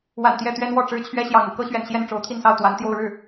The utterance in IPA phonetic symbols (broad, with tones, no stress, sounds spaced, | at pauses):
w a̰˨˩ n t̪ j ɛ˥˩ t̪ ɥ ɛ˥ n w ɔ˥˩ ʈ͡ʂ ɻ̩˥ t͡ɕʰ ɥ ɛ˥ ɕ j ɑ˧˥ ŋ ṵ˨˩ k ɤ˥ ɕ ɥ ɛ̰˨˩ n ɕ j ɛ˥˩ n ʈ͡ʂ o˧˥ ʊ̯ t̪ʰ i˥˧ n s ɑ˥˩ ʊ̯ t̪ w a˧˥ n t̪ j o˥˧ ʊ̯ ɻ ɻ̩˥˩